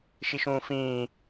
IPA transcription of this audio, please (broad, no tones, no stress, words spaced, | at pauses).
ʃiʃũːfĩː